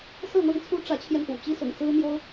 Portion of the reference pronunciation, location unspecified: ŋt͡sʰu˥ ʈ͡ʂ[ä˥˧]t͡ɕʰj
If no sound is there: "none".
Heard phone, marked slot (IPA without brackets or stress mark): ä˧˥